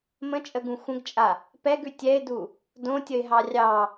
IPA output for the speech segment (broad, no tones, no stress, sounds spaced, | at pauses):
m ə̃ t͡ʃʼ ə ɡ ũ xʷ ə̃ ɡ t͡ʃʼ a | p ɛ ɡ ʉ tʲ ɛ ɪ̯ d u | d õ tʲ ə ɪ̯ ɦ ɑ rʲ ɑ